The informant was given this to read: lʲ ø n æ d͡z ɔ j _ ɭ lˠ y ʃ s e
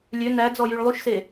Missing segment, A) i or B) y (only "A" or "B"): B